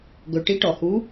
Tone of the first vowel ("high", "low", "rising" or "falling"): low